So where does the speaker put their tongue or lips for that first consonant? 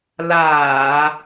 tongue tip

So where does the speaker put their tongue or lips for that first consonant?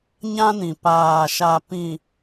palate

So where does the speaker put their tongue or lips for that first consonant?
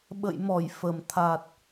lips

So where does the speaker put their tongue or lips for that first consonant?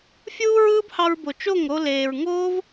lips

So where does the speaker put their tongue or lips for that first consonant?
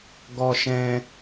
velum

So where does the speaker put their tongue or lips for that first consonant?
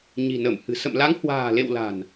palate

